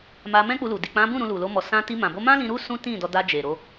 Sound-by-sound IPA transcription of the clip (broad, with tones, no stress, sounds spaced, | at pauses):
m a˧ m ɛ̃˦ k͡p u˧ l u˨ d i˨ k͡p ã˨˦ b ũ˦˨ ɾ ũ˧ l u˨ l o˧ m ɔ˨ s ã˧ t i˧ m ã˨ b o˧ m ã˦ l ĩ˧ ɾ u˦ s ũ˦ t ĩ˦˨ d ɔ˧ d a˧ d͡ʒ e˨ ɾ o˧